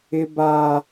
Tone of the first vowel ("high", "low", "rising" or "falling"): high